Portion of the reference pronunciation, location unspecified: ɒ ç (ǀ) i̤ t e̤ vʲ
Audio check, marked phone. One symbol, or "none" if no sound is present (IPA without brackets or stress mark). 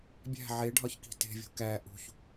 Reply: k